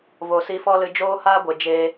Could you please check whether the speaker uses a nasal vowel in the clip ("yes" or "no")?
no